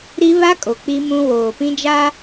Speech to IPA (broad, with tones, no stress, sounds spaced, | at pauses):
ɾ i˦ β a˦ kʼ o˨ k͡p i˦ m ũ˦ w oː˨ p ĩ˦ d͡ʒ a˦